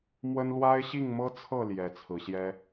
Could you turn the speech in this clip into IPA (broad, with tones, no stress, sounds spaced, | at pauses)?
m w ə˦ n l w a˦ ɪ̯ ɕ i˥˨ ŋ m ɤ˦ t͡sʰ ɤ˥˨ l j ɛ˨˦ t͡sʰ ɹ̩˨˦ ɕ j ɛ˦